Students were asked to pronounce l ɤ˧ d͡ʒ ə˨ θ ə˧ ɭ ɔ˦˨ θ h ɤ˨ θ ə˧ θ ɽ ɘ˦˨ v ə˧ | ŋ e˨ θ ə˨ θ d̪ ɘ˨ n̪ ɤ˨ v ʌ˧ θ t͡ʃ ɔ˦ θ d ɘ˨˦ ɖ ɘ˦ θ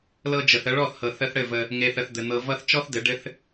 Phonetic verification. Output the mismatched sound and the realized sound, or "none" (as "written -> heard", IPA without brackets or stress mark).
none